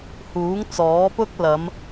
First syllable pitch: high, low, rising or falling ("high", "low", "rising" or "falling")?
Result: rising